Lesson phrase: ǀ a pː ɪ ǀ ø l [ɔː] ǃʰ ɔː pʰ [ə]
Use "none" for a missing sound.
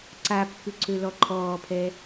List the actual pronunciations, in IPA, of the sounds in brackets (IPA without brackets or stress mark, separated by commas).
ɔ, ɛ